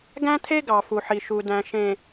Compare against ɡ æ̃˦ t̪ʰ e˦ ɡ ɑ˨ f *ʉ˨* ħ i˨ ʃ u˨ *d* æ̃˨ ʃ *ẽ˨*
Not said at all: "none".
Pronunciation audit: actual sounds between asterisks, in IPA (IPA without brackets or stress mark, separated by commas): u˨, d, ẽ˨